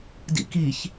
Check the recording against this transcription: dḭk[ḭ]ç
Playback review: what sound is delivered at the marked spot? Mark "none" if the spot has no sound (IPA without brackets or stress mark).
i